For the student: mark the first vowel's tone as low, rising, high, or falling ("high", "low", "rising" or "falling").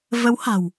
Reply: rising